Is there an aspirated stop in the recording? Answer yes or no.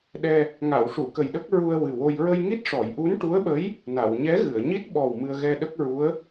no